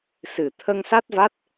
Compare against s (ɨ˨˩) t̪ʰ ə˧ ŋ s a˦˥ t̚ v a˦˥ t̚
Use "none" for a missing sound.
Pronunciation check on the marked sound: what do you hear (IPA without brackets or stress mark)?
ɨ˨˩